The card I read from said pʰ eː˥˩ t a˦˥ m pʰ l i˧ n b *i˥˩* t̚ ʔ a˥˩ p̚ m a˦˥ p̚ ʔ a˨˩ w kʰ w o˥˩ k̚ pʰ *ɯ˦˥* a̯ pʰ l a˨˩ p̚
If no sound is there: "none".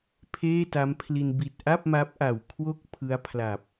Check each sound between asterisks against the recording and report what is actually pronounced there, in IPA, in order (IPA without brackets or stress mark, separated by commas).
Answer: i˨˩, ɯ˦˥